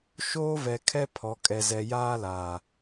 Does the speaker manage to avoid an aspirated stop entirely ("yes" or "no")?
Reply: no